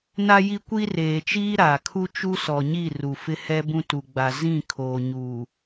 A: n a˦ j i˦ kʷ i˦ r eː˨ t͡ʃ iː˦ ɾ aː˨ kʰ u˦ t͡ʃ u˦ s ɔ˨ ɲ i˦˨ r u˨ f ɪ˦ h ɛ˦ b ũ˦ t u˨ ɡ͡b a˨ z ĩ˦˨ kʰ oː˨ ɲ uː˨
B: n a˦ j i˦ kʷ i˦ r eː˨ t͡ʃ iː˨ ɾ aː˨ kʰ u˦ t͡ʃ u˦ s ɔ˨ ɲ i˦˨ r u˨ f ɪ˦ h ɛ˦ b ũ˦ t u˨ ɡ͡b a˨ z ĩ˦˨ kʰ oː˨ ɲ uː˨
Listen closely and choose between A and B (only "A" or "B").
A